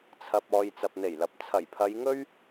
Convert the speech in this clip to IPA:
t͡sʰɐ˨p̚ɔː˨j t͡sɐ˨p̚n̪e˨˩jlɐ˨p̚ t͡sʰɐ˨˩jpʰɐ˨˧jŋɵ˥ɥ

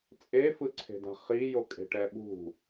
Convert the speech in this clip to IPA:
t͡sʼefɯǀʰe̤da̤ χijokʼe̤ ʈɛɓṳ

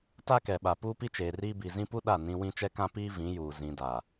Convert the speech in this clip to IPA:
ta˦kɛ˨ɓa˨ puː˦pi˦t͡ʃeː˨riː˦ bi˨ zĩ˦pu˦ ɗa˦˨ nĩ˦ wĩ˦t͡ʃɛ˦kã˦ piː˦ vĩ˨˦juː˨ zĩ˨ da˨

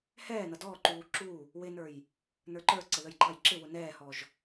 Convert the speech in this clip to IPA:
hɛːnʌ dɔǃuː ǁu | wɪnə˞j | nə˞ǃə˞ǀə ðəjǃɑjǁɪwʊ nɛːhɔʒ

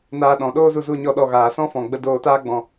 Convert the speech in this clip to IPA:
naː˧ ɗɔ̃˨ɗoː˦zu˧ zu˦ɲɔ˦ɗɔ˧ ɣaː˨sɔ̃˦fɔ̃˨ɡ͡bə˧ doː˧taː˦ ɡ͡bɔ̃˧

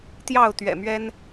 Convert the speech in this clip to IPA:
t̪jɑ˥˨ʊ̯t̪ɥɛ̰˨˩mɥɛ˦n

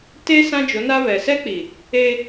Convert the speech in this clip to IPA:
te˦ sã˦d͡ʒo˨˦na˦ βɛ˨ sɛ˦k͡pi˨ | e˦

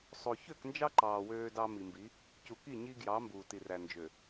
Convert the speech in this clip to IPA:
sˤo˨ çø˦˨knd͡ʒɑ˦ǃɑː˨ wøː˦dɑ˦ mi˨mbi˨˦ | cu˨ki˦˨ ɲi˦ɡjɑ˨˦ mbuː˨ti˨ræ˨ nd͡ʒø˨

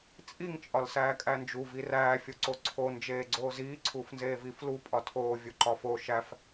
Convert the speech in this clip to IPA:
t͡sʼiŋ t͡ʃʼɒlsæːkʼænd͡ʒu viræː fʲoǀoǀʰo nd͡ʒeːɡ͡ǀoːziː ǀʰuːfnzeːviːflu pʼɒtʰoː vʲoǃɒfo ʃæf

